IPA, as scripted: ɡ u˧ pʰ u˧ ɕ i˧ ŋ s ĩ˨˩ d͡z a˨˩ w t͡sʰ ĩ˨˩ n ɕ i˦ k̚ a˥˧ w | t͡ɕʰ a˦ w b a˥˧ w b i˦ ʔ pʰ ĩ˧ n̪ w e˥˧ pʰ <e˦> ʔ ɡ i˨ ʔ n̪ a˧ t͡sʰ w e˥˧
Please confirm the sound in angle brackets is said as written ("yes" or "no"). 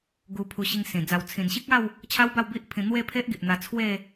yes